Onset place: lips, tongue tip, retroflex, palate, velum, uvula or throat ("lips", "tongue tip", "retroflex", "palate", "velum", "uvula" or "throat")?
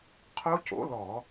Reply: uvula